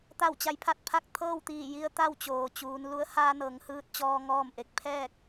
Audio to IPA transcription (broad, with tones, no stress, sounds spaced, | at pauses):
t̪ a˧˩ w t͡ɕ a˩˧ j pʰ a˧˩ t̚ pʰ a˧ k̚ t̪ʰ ɤː˥˨ w t̪ iː˧˩ j i˧ ə̯ t̪ a˥˨ w t͡ɕ oː˩ t͡ɕ uː˩˧ n l u˧˥ ə̯ h aː˧ n ɤː˩˧ ŋ h ɯː˧ t̚ t͡ɕ ɔː˧ ŋ ɔː˥˨ m ʔ e˧ k̚ pʰ ɛː˥˨ k̚